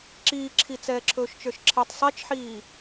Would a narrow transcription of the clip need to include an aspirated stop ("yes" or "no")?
yes